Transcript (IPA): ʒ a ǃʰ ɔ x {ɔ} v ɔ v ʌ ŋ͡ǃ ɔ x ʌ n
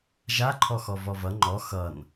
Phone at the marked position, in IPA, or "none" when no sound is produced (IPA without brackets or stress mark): ɔ